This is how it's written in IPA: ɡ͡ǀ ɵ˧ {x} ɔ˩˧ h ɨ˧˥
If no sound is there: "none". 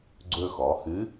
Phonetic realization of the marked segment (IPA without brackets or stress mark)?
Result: x